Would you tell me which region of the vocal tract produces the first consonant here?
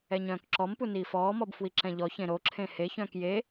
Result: palate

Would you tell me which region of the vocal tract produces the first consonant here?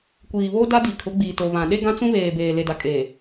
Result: velum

